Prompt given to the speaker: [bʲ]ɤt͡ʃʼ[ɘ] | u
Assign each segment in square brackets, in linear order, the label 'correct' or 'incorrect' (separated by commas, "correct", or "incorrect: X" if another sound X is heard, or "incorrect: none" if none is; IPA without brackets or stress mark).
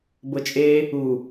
incorrect: b, incorrect: e